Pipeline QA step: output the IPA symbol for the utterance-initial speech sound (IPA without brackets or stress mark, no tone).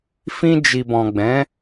f